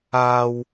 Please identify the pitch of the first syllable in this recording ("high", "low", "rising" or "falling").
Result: high